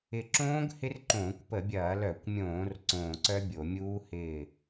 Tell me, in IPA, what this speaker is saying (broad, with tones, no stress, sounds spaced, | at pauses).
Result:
ɪ˧˩ ǁ õː˦˥ ɡ h ɪ˦˥ r ǃ õː˧˩˧ kʷ p ə˧˩˧ bʲ ɐː˧˩˧ l œ˧˩˧ kʷ mʲ õː˧˩˧ r ǀ õː˧˩ ǀ œ˦˥ bʲ o˧˩˧ mʲ uː˦˥ h ɪː˧˩